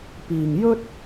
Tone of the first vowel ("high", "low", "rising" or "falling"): low